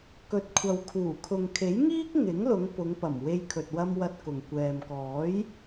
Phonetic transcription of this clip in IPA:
kɵ˨˥t̚kʷʰɐ˨wkʰuː˨˩ kʰʊ˨ŋkʰe˨˥jŋiː˥k̚ ŋɪ˨˥ŋlʊ˨˧ŋ pʊ˨˧ŋpɐ˨˩m we˧jkʰɵ˨t̚wɐ˧m wɐ˧t̚kʊ˨ŋ kʷɛː˨mkɔː˨˥j

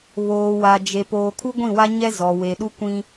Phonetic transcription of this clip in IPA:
βoː˨wa˨d͡ʒe˨ poː˨kʰu˦ɡʷĩ˦˨ wa˦ɲɛ˦ zɔ˨we˨ɗu˦ kʷĩ˦

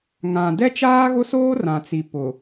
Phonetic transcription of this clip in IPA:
ŋã˨ dɛ˦t͡ʃaː˦ɣʊ˦soː˦ rã˨t͡si˨ pʊ˨

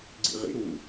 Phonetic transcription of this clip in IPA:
ɡ͡ǀḭʁḭ ɾu

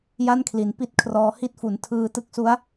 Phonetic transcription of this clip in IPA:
ja˥˩nkʰli˩˦n pi˥˩t̚kʰrɔː˧ hi˥˩t̚fu˨˩n tʰɯː˧tɯ˥˩k̚su˦˥a̯

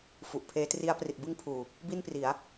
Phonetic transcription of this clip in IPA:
fu˨˩ʔpʰeː˦˥tri˦˥a̯ pri˨˩t̚bɯ˥˩ŋpʰuː˨˩ | bi˥˩npri˩˦a̯

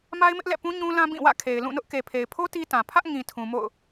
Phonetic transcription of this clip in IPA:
ma˦ɪ̯mɪ˦ʔlɛ̰˦˨pũ˦ ɲũ˦lã˦ bĩ˦˨ wä̰˦˨kʰe˨ɪ̯ lũ˦˨nʊ˦ʔ ke˨pʰe˨ɪ̯pʰo˦ ti˦tã˨ pʰä˦ʔŋĩ˨ tʰũ˨mo̰˦˨ʊ̯

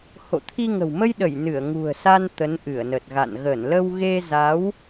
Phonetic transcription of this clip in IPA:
ho̰˧˨t̪ʰi˧ŋə̤˨˩w mə˧jɗə˧˩j nɨ˧˩ə̯ŋṳ˨˩ə̯sa˧n t̪ə˨˦nʔɨ˧˩ə̯nə˨˩t̚ɣa̰˧˨n ɣə˧˩nlə˧w ɣe˧ za˨˦w

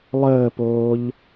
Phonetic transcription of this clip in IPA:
lˠəːpoːʎ

